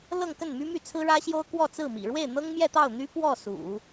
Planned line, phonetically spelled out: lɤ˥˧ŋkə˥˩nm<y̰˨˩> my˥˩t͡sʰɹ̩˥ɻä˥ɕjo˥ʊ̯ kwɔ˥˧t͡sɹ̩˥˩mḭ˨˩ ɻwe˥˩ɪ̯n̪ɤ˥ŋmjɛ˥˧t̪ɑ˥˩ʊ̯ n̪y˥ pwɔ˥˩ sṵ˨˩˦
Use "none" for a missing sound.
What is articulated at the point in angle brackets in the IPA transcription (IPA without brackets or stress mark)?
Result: y˥